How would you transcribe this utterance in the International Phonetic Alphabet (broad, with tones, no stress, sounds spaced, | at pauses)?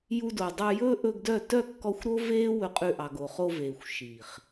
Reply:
j u˧ d o˨ dˤ œ˧ j ɵː˦ ʔ ɵ˧ ɡ d œ˦˨ t œ˦˨ kː ɔ˧ xʷ ɾ o˦ v eː˦ w ɵ˧ qʼ ʉ˧ ʔ ɑ˨ ɡ o˨ χ o˧ v eː˨ xʷ ʃ iː˨ χ